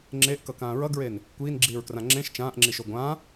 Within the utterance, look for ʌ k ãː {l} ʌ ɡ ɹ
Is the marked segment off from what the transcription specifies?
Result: yes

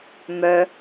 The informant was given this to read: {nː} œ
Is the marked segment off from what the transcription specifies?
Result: yes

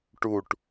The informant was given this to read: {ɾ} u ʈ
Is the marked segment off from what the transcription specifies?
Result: yes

